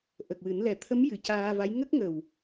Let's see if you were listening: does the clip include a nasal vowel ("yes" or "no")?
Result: no